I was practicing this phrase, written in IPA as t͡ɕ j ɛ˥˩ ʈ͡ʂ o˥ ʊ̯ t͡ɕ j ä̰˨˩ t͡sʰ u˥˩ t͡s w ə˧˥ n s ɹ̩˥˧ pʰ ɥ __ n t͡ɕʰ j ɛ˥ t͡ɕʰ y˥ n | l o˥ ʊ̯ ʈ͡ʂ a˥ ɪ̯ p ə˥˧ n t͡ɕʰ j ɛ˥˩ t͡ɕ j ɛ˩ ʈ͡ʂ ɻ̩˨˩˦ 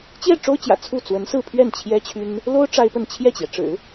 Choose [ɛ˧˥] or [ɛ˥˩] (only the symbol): ɛ˥˩